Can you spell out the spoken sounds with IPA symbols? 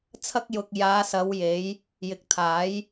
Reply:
t͡sʰɐ˧k̚jʊ˨k̚ jaː˨˧sɐ˨˧wje˨˧j | jɪ˨k̚t̪ʰaː˨˥j

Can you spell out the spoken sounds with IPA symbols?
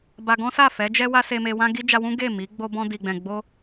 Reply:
ba˧ɡɔ̃˦sa˦˨ fɛ˨˦d͡ʒɛ˦ wa˦se˧me˧ wã˦ɡi˦ d͡ʒa˧wũ˦ ɡe˦˨mi˨˦ ɡ͡bo˧bɔ̃˧ di˨ɡ͡bɛ̃˨ ɡ͡bo˧

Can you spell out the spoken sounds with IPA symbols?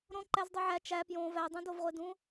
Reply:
ɾõ ǃæzdˤuʕæ t͡ʃæ pjõ vædˤũ dovʁʷedũ

